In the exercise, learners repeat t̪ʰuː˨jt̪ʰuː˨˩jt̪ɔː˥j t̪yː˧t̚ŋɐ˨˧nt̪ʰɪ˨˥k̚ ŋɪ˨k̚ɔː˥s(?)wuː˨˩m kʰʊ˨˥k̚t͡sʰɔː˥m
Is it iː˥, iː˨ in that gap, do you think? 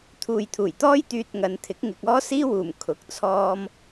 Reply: iː˥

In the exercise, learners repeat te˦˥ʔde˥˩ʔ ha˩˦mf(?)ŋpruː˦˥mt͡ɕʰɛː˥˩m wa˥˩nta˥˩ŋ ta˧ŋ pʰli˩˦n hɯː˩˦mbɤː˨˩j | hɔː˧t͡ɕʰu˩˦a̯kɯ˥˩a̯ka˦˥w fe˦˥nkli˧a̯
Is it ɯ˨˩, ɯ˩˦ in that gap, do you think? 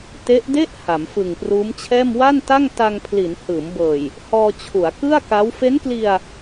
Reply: ɯ˨˩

